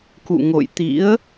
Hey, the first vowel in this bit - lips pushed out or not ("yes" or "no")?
yes